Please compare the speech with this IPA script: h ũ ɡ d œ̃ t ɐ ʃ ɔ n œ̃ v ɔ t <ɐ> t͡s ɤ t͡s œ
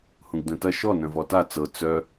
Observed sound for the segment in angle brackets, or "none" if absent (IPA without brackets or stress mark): a